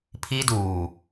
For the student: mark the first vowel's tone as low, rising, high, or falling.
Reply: high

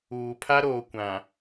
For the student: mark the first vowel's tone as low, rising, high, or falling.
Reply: low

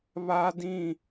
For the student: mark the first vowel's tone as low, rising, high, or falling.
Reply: high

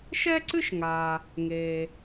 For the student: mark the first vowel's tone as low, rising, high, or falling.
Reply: high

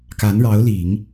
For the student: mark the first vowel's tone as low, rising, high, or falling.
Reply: rising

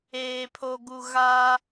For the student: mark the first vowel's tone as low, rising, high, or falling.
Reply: low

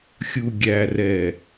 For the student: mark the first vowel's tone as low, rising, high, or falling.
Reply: low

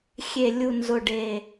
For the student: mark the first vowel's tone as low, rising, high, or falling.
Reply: low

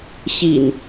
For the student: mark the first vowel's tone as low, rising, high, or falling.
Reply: low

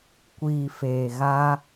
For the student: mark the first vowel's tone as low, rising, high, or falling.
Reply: low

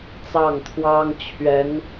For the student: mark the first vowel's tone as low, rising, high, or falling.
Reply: falling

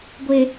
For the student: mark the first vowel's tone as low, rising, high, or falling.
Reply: low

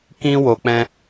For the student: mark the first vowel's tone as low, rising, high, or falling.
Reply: high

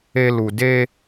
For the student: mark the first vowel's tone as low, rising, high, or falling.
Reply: high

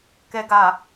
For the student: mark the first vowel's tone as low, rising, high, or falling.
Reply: low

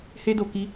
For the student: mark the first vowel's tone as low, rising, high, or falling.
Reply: high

